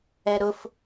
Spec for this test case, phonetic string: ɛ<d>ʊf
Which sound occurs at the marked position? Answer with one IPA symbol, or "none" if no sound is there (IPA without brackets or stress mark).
ɾ